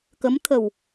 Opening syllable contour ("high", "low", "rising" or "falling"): rising